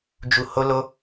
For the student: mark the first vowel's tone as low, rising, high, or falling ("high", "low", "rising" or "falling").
low